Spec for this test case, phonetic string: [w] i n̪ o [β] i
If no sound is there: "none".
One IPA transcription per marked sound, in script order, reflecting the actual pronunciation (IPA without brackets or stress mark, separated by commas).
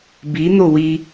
b, w